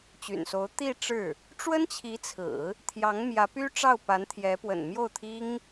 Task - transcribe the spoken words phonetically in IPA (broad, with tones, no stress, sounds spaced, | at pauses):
t͡ɕ y̰˨˩ n s o˧˥ ʊ̯ t̪ i˥˧ ʈ͡ʂ ɻ̩˥˩ | ʈ͡ʂ w ə˥ n t͡ɕʰ i˧˥ t͡sʰ ɹ̩˨˩˦ | t̪ʰ j ɑ˧˥ ŋ m j ä˧˥ p y˥ ʈ͡ʂ ɑ˥˩ ʊ̯ p a˧˥ n t̪ʰ j ɛ˧˥ p w ə̰˨˩ n m j o˥˩ ʊ̯ t̪ʰ i˥ ŋ